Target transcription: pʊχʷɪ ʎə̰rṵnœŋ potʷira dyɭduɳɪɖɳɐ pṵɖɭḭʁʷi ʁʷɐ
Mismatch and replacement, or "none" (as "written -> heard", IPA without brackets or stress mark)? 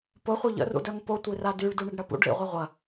n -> d